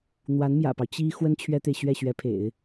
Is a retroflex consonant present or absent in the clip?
absent